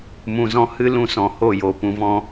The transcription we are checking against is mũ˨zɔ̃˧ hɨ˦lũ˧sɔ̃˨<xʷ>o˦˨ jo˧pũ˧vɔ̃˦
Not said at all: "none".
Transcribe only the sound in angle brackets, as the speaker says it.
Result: h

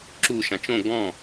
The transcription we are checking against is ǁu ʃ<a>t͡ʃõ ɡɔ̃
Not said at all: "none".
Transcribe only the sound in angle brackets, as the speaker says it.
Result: ã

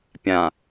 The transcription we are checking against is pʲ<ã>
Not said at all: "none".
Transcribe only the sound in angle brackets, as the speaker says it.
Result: ã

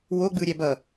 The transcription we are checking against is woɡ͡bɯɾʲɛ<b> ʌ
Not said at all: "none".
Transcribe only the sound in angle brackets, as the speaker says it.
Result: b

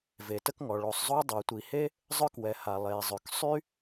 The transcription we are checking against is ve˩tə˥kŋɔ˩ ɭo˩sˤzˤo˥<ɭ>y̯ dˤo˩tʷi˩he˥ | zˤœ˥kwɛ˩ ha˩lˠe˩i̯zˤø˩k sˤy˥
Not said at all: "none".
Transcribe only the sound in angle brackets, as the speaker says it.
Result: none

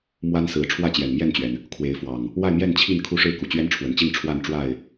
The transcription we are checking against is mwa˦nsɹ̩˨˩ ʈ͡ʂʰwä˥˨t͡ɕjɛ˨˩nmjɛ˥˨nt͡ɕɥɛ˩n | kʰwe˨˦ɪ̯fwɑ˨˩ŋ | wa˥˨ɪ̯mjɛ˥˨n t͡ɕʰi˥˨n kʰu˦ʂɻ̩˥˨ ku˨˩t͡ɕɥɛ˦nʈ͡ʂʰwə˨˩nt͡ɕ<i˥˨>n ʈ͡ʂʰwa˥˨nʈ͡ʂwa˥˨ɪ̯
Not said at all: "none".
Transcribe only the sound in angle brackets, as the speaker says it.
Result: i˥˨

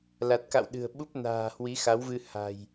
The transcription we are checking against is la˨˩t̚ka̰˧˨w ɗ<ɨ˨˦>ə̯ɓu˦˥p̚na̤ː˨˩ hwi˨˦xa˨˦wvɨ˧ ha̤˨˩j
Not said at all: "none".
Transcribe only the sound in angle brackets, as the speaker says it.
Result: ɨ̤˨˩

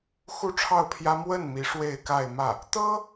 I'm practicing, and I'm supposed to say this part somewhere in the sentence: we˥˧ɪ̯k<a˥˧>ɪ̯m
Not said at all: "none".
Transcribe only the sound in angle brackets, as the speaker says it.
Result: a˥˧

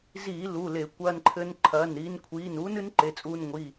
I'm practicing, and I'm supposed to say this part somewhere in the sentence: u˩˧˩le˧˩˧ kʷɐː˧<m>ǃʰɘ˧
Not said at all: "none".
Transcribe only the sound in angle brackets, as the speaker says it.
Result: n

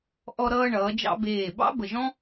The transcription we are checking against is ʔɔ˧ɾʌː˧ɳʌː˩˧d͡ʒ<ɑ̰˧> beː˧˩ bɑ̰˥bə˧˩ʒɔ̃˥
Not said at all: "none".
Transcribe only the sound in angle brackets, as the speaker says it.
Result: ɑ̰˧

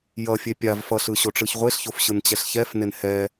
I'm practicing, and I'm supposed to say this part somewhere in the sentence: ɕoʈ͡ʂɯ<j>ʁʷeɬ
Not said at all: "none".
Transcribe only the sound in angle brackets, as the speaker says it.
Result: ç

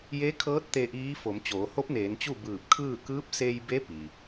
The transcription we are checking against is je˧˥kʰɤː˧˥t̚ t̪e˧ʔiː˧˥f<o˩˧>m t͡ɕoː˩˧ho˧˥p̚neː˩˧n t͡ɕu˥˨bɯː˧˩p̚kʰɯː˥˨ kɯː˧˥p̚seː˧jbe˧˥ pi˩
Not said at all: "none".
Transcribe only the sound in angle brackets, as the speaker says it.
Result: o˩˧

